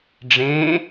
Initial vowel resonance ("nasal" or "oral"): nasal